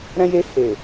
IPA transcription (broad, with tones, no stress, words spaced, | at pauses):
ɾɛ̃˧je˧ he˨